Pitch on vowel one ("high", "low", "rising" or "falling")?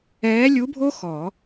rising